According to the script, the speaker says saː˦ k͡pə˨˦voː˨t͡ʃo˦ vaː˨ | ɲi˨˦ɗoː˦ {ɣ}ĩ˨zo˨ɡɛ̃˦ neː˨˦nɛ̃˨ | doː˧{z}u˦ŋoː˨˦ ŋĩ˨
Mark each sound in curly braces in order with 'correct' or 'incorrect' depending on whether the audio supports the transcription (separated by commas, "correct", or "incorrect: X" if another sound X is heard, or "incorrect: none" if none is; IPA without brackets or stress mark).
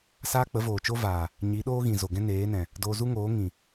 correct, correct